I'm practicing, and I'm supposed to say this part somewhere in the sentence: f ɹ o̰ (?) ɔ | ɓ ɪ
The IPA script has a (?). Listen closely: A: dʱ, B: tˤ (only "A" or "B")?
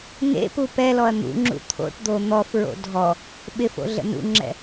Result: A